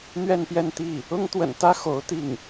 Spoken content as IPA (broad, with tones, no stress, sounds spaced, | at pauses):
n̪ ɥ ɛ˥˧ n p j ɛ˥˧ n t̪ i˥˩ | ʊ˥ ŋ t̪ w ə̰˨˩ n t̪ ä˥ x o˧˥ ʊ̯ t̪ i˥˩ ŋ